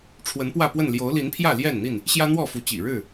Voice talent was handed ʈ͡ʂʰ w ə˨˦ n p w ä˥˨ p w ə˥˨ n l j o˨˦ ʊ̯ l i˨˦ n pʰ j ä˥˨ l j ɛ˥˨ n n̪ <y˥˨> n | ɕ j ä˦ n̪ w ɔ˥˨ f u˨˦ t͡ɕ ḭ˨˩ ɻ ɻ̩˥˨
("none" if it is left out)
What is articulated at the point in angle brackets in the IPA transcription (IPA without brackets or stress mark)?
i˥˨